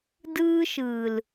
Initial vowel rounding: unrounded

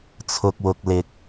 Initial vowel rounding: rounded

